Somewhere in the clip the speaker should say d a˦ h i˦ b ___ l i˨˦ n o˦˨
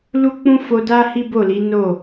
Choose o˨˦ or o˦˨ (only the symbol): o˦˨